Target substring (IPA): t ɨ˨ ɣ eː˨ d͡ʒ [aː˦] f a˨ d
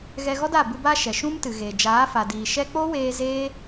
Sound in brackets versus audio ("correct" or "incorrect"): incorrect